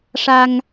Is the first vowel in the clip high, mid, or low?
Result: low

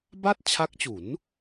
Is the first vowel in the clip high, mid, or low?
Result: low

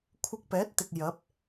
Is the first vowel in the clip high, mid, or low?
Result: high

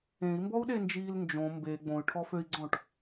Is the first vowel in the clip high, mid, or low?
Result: mid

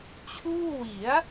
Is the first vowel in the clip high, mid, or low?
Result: high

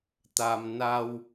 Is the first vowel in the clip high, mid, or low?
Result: low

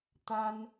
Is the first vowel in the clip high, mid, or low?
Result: low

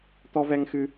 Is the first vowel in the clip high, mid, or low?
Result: mid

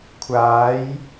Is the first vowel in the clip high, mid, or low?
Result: low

